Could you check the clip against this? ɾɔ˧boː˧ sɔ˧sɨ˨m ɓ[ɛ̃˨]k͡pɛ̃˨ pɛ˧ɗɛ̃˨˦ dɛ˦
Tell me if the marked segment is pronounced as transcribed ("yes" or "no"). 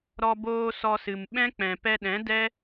no